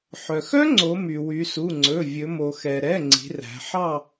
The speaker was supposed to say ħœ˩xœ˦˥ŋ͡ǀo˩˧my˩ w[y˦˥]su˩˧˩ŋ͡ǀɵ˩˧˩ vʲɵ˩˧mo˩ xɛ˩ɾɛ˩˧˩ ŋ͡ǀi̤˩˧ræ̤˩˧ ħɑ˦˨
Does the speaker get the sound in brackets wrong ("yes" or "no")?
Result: yes